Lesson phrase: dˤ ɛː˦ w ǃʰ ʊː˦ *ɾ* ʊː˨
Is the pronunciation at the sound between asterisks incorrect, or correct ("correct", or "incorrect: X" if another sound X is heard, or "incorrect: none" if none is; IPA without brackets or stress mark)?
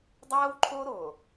correct